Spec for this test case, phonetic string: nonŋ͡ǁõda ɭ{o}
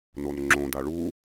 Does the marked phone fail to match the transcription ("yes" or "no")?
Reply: yes